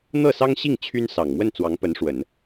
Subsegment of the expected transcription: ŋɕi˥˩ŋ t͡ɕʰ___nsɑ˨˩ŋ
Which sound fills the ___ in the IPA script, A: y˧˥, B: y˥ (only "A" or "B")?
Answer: B